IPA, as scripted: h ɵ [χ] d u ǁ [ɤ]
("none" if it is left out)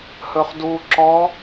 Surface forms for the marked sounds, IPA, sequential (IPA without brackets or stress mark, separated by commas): χ, ɔ